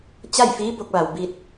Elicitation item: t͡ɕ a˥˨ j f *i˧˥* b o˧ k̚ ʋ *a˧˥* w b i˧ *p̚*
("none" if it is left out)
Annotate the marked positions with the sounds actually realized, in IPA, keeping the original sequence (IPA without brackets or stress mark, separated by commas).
iː˧˥, a˩, t̚